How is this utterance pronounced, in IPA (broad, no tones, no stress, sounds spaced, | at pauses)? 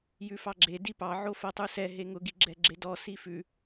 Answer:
j ʉ f ɑ ɡ͡ǁ e d i p ɑ ʕ o f ɜ tˤ u s ɛ ɦ e ŋ ʊ ɡ i ɡ͡ǁ ɛ ɡ͡ǁ e d ɔ s i f ʉ